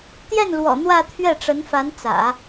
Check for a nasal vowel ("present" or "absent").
absent